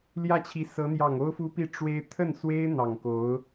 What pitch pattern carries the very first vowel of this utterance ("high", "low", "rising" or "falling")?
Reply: falling